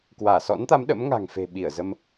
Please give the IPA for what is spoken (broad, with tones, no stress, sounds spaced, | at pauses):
k w aː˧˩ s ɔ̰˧˥ n t̪ a˨˦ m ɗ ə̰˧˥ m ŋ a̤˨˩ ŋ f e̤˨˩ ɓ i˧˩ ə̯ z ə˧ m